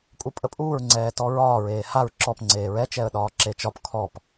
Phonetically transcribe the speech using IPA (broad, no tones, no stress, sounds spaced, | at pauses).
kʼ u pʼ ə pʼ uː ɹ ŋ͡ǀ ɛː t ɔ ɹ ɒː ɹ eː h a ɹ ǁ ɔ p ŋ͡ǀ eː ɹ ɛ t͡ʃ ɛ ə̯ ɗ ɒː ǁ e t͡ʃ ɒ p kʰ ɔ p